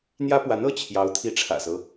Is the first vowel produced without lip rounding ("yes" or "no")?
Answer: yes